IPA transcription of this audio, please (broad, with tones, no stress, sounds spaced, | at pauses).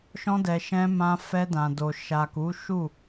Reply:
ʃ ɔ̃˧ d ɛ˨ ʃ ɛ̃˧ m ã˧ f ɛ˧ d ã˨ d o˨ ʃ a˨ k u˨˦ ʃ u˦˨